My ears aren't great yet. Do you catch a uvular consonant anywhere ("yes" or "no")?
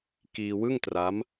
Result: no